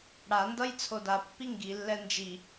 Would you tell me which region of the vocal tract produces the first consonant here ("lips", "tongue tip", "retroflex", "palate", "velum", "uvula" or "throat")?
retroflex